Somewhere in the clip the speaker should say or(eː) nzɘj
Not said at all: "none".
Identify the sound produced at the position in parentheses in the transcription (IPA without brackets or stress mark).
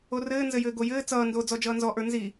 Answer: ɘː